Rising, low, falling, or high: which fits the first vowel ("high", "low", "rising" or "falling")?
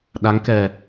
rising